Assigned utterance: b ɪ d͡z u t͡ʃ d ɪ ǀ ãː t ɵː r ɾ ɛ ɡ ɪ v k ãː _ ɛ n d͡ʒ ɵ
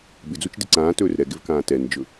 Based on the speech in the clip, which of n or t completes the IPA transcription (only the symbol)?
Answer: t